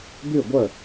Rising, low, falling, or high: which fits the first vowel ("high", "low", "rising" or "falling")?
falling